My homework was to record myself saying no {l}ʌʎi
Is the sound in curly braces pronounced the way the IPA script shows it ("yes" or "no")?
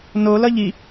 yes